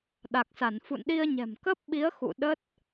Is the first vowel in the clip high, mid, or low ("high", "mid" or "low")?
low